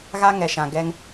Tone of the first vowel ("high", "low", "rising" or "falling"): high